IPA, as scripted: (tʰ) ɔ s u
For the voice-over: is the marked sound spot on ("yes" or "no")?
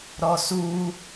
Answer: no